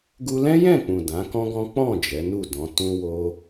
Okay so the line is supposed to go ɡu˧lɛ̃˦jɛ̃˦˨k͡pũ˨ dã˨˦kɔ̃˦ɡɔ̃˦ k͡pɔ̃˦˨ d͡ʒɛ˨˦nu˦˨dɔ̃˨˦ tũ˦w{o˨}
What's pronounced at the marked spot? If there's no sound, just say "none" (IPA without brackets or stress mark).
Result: o˦